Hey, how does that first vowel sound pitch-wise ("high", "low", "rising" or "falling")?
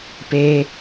high